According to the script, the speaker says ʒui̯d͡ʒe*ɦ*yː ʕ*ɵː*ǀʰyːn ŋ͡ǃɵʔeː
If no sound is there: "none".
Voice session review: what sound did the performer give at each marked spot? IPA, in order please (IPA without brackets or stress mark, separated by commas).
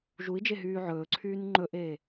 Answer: ɦ, ɵː